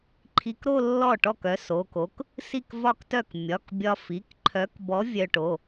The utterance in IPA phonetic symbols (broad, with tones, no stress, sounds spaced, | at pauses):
ǃʰ i˧ k ɾ o˥˧ lː ɔ˥˩ ʈ ɔ˥˩ k œ˨˥ s o˩˧˩ k o˨˥ k | s i˥˩ k v ɒ˥˩ k t œ˥˩ k mʲ ɒ˩˧˩ k bʲ ɒ˧ f i˩˧˩ k ǃʰ œ˨˥ k b ɔ˨˥ vʲ œ˧ ʈ o˩˧˩